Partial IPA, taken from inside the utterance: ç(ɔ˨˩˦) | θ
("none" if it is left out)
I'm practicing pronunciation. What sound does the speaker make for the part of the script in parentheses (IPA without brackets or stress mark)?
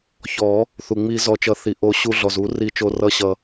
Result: ɔ˨˩˦